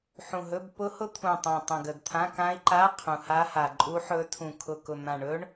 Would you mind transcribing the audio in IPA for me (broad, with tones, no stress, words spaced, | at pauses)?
ħũ˨˩ɦɵ˧˥˧b pʊ˦˥hʊ˦˥t̪ʰũ˨˩tˤã˨˩ tˤə̃˨˩ɡə˨˩dt̪ʰã˧˥˧ kã˦˥i̯ǃa˧˥˧ qʰũ˨˩ ha˦˥ha˨˩ǃʼu˦˥ħɵ˦˥ tʰũ˨˩ kʰʊ˨˩kʊ˨˩n̪ã˨˩ɳɵ˦˥ɳ